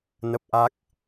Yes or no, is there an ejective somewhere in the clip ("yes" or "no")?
no